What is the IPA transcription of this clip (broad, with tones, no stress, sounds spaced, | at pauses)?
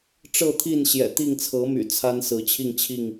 ʈ͡ʂ ɤ˥˨ t̪ʰ i˥˨ n ɕ j ɛ̰˨˩ t̪ i˥˨ ŋ t͡sʰ ɤ˨˦ m y̰˨˩ t͡sʰ a˦ n s ɹ̩˨˦ t͡ɕʰ i˥˨ ŋ t͡ɕʰ i˥˨ ŋ